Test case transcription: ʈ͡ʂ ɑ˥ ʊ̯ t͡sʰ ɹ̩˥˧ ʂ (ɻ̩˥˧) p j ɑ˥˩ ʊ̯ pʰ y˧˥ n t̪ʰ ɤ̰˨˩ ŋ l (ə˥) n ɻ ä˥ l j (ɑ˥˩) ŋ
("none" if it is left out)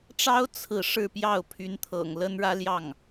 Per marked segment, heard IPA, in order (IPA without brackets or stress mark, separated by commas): ɻ̩˥˧, ə˥, ɑ˥˩